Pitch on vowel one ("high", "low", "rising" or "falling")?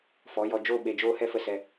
rising